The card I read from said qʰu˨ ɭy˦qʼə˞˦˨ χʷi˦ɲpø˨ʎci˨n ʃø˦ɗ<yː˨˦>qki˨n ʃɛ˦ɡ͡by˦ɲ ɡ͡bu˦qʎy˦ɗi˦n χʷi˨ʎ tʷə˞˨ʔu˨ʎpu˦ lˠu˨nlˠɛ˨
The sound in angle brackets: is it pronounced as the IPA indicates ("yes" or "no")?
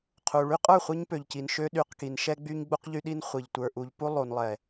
no